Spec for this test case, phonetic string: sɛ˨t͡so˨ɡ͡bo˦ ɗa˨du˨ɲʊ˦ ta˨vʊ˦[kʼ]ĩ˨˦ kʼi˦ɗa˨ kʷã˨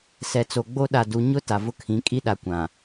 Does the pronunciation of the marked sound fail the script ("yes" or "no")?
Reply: yes